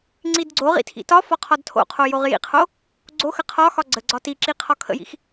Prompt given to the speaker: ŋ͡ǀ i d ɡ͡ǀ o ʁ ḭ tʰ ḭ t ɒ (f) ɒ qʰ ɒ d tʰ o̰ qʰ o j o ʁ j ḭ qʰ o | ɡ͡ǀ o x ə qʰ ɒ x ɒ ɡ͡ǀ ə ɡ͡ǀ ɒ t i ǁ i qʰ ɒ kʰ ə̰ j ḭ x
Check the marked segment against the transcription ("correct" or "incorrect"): correct